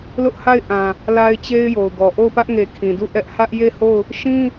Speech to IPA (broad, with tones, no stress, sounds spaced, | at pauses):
l ʊ˦ ʔ h a˦˨ ɪ̯ ʔ ã˨ | l a˦ ɪ̯ t͡ɕ e˦ ɪ̯ j o˨ ʊ̯ ɡ ɔ˨ ʔ o˦˨ ʊ̯ p ä˦ ʔ ŋ e˨ kʰ ĩ˨ d u˦˨ ʔ ɛ˦ ʔ h ä˦ ʔ j e˦˨ h o˦˨ ʊ̯ | ʃ ĩ˦